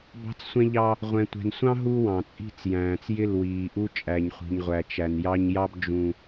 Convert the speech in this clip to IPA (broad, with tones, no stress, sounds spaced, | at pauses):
b ɑ̤˦ t͡s sʷ ɛ̃˦ ʎ ɑ˦ | ʁʷ ɛ̃˨ tʷ ɛ̤˨ n sʷ ɑ̃˦ ɦ u˦ w ɑ̃˨ t͡sʼ i̤˦˨ t͡s j æ̃ː˨ t͡s j ɪ˦˨ l w iː˨ ʔ u˦ t͡ʃʼ æ˨ ɲ χʷ i̤˨ ɲ ʁʷ æ˨ t͡ʃ æ˨ n j ɑ˦ ɲ j ɑ˦ b d͡ʒ ũ˨